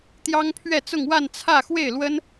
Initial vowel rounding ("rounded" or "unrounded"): unrounded